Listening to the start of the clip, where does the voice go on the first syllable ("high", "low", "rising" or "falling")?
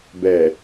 low